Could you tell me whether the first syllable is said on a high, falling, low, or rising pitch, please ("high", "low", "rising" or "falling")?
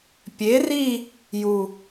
rising